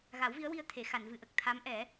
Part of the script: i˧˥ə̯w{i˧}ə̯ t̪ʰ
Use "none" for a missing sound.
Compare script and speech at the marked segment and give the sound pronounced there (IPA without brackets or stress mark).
i˧